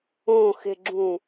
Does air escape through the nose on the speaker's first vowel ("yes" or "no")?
yes